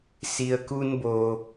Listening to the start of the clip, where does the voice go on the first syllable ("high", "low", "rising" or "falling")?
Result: low